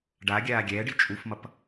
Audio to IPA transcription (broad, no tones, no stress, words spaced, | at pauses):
ɖaɡʲaː ɡʲɛːɖi t͡ʃʼufmʌp